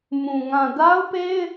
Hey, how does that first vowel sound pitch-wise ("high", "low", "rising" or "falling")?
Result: low